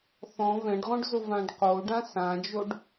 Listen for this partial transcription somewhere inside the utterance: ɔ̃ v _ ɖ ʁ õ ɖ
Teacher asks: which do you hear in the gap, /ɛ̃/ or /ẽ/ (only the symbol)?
ɛ̃